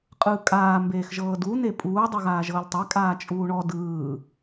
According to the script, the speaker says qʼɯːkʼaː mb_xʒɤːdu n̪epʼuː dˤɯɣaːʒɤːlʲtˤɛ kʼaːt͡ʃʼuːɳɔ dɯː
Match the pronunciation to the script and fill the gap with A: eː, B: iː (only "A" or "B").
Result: A